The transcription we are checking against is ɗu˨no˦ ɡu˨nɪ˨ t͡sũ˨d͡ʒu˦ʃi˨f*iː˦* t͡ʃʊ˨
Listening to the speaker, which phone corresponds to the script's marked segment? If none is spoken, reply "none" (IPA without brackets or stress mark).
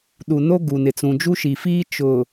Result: iː˦